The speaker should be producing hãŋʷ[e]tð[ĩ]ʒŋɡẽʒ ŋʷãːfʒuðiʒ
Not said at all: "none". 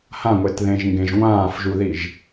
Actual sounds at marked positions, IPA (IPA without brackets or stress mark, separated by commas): e, ẽ